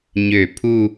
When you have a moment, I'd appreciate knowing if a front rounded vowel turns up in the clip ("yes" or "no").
yes